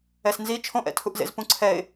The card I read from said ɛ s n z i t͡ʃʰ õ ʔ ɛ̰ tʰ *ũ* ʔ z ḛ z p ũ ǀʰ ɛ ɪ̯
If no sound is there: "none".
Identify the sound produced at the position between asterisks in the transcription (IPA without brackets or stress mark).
u